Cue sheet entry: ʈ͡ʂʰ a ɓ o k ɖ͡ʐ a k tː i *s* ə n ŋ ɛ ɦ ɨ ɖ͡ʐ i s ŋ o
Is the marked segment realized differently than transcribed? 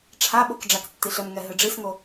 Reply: yes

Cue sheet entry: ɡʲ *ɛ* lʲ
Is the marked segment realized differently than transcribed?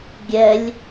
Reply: no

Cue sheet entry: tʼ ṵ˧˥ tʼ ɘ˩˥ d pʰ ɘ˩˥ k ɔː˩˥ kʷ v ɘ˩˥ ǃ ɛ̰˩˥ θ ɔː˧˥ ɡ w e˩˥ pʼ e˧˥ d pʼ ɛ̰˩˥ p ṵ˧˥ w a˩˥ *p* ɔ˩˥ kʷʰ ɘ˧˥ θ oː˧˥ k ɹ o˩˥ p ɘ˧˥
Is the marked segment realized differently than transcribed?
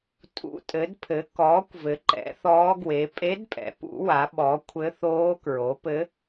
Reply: yes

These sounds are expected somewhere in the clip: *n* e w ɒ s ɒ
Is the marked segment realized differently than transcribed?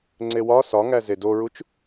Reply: yes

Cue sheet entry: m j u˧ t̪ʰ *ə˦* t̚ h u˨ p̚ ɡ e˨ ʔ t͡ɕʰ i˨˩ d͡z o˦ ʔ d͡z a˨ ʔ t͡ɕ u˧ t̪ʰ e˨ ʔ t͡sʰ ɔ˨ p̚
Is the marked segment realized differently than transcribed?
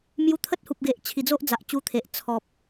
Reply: no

